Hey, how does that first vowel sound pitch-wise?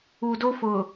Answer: low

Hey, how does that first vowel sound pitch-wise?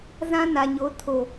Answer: high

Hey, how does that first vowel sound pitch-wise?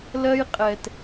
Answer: high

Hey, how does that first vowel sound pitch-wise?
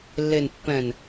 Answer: low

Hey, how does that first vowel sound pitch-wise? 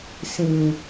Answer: low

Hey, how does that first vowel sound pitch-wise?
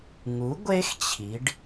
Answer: rising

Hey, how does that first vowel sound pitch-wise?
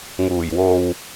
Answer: low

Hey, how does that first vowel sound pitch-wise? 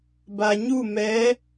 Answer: low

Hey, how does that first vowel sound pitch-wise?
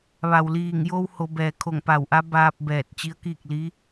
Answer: low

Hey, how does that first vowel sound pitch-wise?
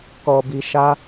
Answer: low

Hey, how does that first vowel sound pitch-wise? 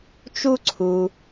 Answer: high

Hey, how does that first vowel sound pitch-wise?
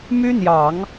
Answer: high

